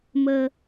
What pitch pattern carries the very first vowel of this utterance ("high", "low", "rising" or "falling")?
low